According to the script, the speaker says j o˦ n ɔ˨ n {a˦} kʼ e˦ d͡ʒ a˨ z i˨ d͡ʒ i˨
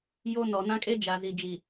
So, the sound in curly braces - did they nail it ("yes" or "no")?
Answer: no